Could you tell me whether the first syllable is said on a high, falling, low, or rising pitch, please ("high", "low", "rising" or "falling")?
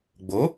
rising